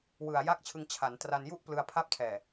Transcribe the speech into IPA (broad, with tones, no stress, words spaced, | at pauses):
wɯ˨˩a̯ jaː˥˩k̚t͡ɕʰɯ˧ŋ t͡ɕʰa˩˦n tra˧nju˥˩ʔ plɯ˧a̯pʰa˥˩p̚ tʰɛː˨˩